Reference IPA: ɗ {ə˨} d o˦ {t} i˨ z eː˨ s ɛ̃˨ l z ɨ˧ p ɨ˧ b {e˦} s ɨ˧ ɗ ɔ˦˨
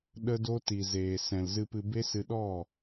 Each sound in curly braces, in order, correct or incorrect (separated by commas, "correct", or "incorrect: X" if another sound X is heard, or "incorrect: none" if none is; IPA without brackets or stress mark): incorrect: ə˦, correct, correct